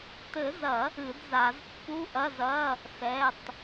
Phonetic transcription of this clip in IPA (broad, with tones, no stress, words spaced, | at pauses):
tɘ˨˩˦zɐ˨˩˦ | ɨ˨˩˦dza˨˩˦z pːu˧˥˧ʔɐ˧˥˧zɐ˧˥˧ | sɛ˧˥˧tˤ